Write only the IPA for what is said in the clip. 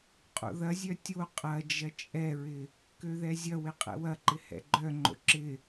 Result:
qʼo̰ðɐzʲœ tʲo qʼɐd͡ʒɐ t͡ʃʼɛɹɪ | køðɛzʲɐwɪ qʼɛ̰wɐǃɪ hɛ̰ɡ͡ǃœŋ͡ǃo̰ ǁɪ

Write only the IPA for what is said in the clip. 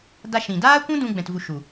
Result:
da˧ʃĩ˨ daː˦kʷũ˦dũ˧ ɡ͡bɛ̃˨tvu˨ ʃu˨

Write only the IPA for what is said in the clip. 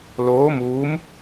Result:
loː˧˥ muː˧˥m

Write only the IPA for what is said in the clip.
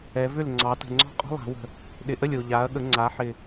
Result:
ɛ˩˧vʏ˥˩lŋ͡ǀɑ˩˧ tə̤˨˩ŋ͡ǀɔ̤˥˩qʼɔ̤˥ lˠa̤˩˧wə̤˨˩ | ɗɪ˨˩ʔə˥˩lʲo˨˩ ʎa˩˧ɐ̯ɠə˩˧ ŋ͡ǀa˩˧ħɪ˨˩

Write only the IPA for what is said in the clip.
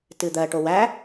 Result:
tɨd̪ɜʈo wæ

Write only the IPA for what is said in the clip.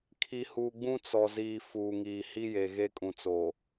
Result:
kʰi˨huː˨ ɡ͡bũ˦t͡sɔ˨ ziː˨ fuː˨ŋiː˨ hi˦je˨ɣe˦ kʼũ˨t͡so˨

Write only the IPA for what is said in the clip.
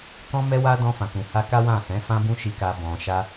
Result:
kɔ̃˧mɛ˧wa˧ dɔ̃˧fã˨kũ˨ha˧ ka˦wã˦˨hɛ̃˨˦ fã˧bũ˧ ʃi˨ ka˨bɔ̃˨ʃa˧

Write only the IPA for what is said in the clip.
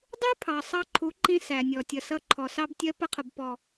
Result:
dˤu˦pʰɑ˨ sˤɑ˧ǃʰu˨˦ǃĩ˧ sæ˨nʲɔ˨ tʲʌ˨sʌ˧ǃʰɔ˨ sɑ˧btʲɜ˧pə˧qʰʊ˨b pɔ˨

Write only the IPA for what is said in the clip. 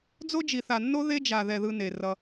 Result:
d͡zo˦d͡ʒi˨θa˨nːo˦ ðe˦d͡ʒa˨ðɛ˨ ðɯ˦ne˨rʌ˦

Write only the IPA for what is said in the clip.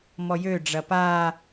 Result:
mɔjø ɖ͡ʐɐpaː

